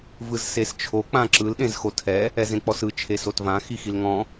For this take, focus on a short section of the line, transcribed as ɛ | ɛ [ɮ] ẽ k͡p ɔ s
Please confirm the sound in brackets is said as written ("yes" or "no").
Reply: no